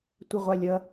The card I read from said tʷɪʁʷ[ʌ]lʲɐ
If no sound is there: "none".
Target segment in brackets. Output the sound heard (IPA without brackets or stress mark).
a